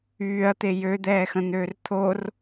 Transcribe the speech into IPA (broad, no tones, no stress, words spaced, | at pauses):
yːɐ̯t̪e jød̪ɛːxə̃n̪øːr t̪ʰor